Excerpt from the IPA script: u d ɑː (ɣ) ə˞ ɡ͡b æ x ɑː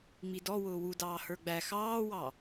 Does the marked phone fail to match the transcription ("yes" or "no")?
yes